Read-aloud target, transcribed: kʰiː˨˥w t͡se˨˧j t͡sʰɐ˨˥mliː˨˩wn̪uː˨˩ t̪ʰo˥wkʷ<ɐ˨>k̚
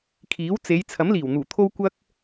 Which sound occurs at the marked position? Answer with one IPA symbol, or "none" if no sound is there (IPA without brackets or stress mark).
ɐ˥